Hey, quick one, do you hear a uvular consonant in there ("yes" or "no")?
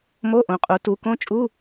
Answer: yes